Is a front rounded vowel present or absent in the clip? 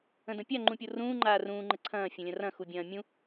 absent